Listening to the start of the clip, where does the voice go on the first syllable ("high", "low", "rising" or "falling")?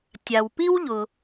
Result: low